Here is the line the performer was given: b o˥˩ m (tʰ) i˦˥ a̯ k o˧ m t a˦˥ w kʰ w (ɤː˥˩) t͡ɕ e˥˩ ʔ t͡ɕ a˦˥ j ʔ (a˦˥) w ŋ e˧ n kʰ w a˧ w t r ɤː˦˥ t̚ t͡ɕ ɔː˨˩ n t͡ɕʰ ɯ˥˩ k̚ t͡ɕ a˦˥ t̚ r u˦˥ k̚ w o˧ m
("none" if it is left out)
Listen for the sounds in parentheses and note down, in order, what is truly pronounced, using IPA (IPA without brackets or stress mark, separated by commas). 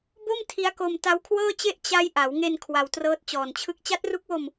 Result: tʰ, ɤː˥˩, a˩˦